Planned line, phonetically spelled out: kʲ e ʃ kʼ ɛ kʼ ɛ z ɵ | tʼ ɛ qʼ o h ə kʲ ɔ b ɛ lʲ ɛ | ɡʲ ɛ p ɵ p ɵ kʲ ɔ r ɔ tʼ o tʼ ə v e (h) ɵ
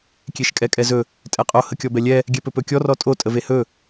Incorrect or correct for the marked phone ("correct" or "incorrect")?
correct